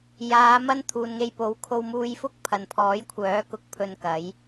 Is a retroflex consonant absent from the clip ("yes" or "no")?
yes